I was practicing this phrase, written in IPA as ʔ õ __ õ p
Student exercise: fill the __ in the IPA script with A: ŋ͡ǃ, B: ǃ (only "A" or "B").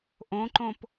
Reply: B